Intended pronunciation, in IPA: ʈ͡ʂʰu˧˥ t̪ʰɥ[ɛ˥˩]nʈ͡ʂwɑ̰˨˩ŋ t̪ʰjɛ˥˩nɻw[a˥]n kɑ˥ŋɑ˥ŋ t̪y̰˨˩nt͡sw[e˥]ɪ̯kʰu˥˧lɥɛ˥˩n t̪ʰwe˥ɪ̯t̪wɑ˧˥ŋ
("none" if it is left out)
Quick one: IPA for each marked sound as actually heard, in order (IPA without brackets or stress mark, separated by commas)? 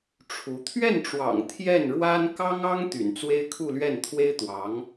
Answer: ɛ˥˩, a˥, e˥